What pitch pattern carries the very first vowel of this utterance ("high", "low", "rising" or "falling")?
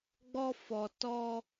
high